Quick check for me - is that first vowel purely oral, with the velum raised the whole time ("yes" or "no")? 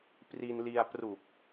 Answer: yes